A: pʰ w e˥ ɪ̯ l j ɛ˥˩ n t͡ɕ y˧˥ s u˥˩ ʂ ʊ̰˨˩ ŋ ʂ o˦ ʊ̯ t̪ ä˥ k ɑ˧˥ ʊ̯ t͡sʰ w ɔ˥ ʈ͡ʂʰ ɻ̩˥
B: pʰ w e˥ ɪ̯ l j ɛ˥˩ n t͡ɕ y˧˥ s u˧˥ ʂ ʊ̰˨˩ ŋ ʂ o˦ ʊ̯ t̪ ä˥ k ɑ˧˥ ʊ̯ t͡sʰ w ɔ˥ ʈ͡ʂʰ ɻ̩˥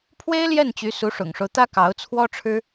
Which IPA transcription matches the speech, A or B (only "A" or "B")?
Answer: B